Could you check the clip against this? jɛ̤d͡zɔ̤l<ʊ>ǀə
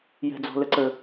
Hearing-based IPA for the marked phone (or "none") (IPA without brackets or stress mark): ə